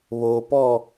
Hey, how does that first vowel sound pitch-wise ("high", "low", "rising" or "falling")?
low